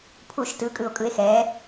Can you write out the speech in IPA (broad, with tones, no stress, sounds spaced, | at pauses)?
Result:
pʰ u˧˩˧ ʃ t ɯ˩˧ kʼ ɯ˨˩ o̯ kʼ ɯ˩˧ e̯ x ɛː˩˧